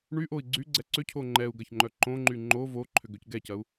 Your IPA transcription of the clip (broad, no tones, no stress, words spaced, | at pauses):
ɳyʔoi̯ ɡ͡ǀyɡ͡ǀɛ ǀʏcʰo ŋ͡ǃɛu̯ɡɐçŋ͡ǃœ ǃõŋ͡ǃy ŋ͡ǃo voǃʰʏɡøc ɡɛcɐu̯